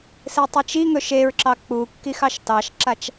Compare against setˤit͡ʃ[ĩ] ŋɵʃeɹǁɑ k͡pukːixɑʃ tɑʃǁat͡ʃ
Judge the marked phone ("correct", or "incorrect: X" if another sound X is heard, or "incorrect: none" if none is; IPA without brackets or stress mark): incorrect: i